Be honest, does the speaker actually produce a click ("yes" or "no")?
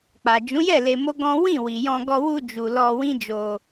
no